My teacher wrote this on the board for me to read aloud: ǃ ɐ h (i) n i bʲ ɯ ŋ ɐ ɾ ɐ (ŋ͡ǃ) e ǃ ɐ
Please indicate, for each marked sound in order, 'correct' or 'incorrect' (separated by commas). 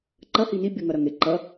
correct, incorrect